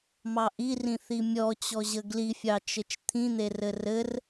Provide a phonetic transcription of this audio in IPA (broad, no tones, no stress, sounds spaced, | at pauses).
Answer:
m ɑ ʔ i r ĩ θ i mʲ ɔ t͡ɕ ɔ ʑ ə ɡ l i fʲ ɑ t͡ʃ ɘ t͡ʃ t̪ʰ ĩ n̪ e r ɘ r ɘ r